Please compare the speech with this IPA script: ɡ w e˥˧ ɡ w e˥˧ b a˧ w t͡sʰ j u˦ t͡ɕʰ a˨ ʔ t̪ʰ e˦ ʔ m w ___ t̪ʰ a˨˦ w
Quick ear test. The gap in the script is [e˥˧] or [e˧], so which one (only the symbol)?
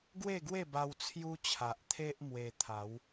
e˧